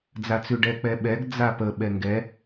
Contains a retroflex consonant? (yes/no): yes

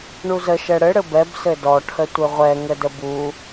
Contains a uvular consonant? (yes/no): yes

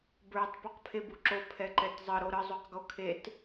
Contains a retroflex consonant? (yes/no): no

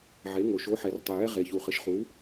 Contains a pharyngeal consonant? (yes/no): yes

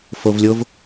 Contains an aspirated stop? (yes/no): no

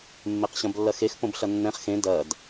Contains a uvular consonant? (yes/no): yes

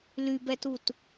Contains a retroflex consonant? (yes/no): no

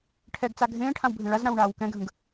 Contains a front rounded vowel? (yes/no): no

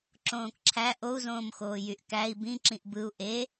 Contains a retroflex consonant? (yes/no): no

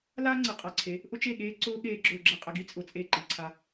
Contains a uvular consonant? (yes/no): yes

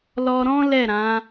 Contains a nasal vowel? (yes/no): yes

